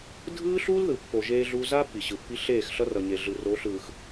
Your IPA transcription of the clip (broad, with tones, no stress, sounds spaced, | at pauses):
dʱ ɯː˦ ɬ uː˦ l ð ɯ˨ pː o˨ ʒ eː˦ ɮ u˦ z a˦ pː i˨ ɕ ɯ˨ pː i˦ ɬ eː˦˨ x ɬ ʌ˦ r ʌ˨ ɲ e˨ ɮ ɯ˨ r o˨˦ ɬ ɯː˨ x